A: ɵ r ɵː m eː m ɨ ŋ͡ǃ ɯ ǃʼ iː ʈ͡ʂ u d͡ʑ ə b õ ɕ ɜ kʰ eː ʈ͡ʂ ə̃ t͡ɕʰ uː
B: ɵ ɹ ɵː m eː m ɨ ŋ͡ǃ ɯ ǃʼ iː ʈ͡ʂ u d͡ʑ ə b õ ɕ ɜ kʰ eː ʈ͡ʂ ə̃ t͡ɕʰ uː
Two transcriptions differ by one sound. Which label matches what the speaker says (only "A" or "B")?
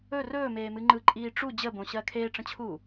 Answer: A